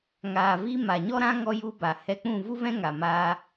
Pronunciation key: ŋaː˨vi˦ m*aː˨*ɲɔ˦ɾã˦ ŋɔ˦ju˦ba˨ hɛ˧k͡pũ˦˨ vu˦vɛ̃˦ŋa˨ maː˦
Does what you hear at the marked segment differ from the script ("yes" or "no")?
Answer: yes